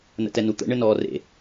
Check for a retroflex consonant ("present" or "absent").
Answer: present